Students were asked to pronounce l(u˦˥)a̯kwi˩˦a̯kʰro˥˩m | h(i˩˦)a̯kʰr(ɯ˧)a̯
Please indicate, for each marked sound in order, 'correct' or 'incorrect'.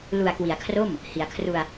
incorrect: u˨˩, correct, incorrect: u˧

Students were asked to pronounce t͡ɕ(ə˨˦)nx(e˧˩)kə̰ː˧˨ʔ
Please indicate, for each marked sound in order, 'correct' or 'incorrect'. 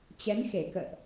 incorrect: ɛ˨˦, correct

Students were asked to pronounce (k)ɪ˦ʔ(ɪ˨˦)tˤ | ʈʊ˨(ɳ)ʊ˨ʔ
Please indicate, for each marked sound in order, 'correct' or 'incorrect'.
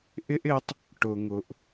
incorrect: ʔ, correct, incorrect: ŋ

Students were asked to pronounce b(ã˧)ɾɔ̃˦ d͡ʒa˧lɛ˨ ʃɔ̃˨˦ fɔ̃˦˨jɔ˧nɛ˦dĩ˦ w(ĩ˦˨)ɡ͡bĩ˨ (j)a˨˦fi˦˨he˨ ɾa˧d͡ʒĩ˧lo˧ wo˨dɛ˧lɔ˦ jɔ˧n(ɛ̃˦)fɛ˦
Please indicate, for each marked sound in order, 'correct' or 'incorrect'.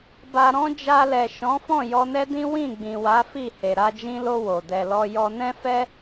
incorrect: a˧, correct, incorrect: w, correct

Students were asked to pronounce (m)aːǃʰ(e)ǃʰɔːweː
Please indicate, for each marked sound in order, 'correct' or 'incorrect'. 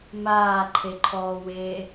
correct, correct

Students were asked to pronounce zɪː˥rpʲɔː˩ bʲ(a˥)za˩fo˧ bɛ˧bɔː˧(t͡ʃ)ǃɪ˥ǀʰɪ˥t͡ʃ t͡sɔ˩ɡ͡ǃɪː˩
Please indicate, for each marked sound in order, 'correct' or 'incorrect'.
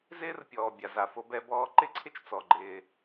incorrect: a˩, incorrect: none

